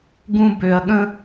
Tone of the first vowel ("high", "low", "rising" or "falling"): high